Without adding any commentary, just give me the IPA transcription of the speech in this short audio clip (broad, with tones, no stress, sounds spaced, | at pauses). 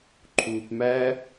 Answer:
ǃʰ uː˧ p m æ˦